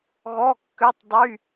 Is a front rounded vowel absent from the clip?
no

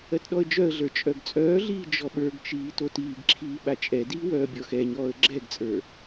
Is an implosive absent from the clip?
no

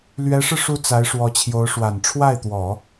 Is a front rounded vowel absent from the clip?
yes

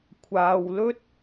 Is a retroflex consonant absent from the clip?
yes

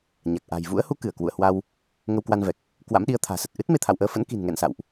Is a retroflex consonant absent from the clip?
yes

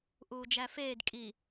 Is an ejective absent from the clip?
no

